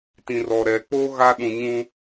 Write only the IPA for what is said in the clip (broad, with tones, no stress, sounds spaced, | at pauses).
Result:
t ĩ˨ r ɔ˨ ɾ ɛ˨ k͡p o˦ ɣ a˦ ɗ ũ˨ ɲ ũ˦